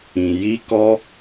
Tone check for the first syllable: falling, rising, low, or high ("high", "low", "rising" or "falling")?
low